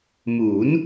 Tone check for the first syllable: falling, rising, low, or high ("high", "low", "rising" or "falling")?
rising